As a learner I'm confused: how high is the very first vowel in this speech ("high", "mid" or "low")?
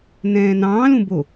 mid